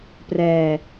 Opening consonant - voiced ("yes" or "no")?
no